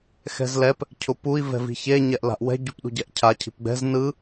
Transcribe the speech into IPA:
xɛ̤zlɛp | cʰʊpui̯ vɛ̤vi̤çe ɲɛʔla̤ʔwɛ̤ ɟupɗṳɟɛʔcʰa cʰi̤pɡ͡bɛ̤z nɯ

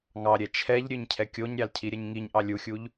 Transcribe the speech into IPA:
ŋɑɾʲɛ t͡ʃʰɛʎ ɾʲøɲcʰɛkʲoɲɾʲɑl cʰiɾʲɛɲŋiɲʔɑ lʲuxʲuʎ

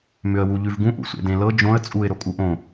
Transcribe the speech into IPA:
mʏə̯wuʎʉvɡũ ʔṵsʷḛdẽlɤ d͡ʒõə̯ t͡sʼuɪ̯ ɾokʼuʔõ

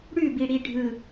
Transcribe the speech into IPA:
ɽʉbiɽi ɖʱɯ

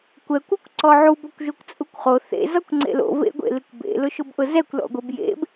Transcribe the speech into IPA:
kʷɛkʷ ukʷǀɔʕub ɔkʷʒokʷt͡sʼukʷχo θḛ zɔkʷŋ͡ǀḛlo̰ vḛɡʷḛlɪkʷbḛ lʊʃʊbʔʊzɛkʷ lɔ̰ɡʷebjḛb

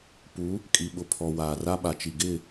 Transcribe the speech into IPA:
pu˨˦ | kʼi˨ɓʊ˨ pʰɔ˨waː˨ ra˦ɓa˨t͡ʃi˨ɡɪ˦˨

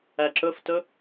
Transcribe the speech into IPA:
æǁɵftɵ

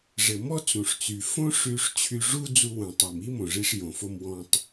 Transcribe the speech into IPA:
ʐɘ˩mɔ˥ t͡sũ˩ʂt͡sy˩ fõ˥ʂy˧ʂ t͡ɕʰy˧ʐu˥ d͡zu˧wũ˩tˤi˩m i˥mõ˩ʐi˧ʂ jõ˩fo˧m wɔ̃˧tˤ

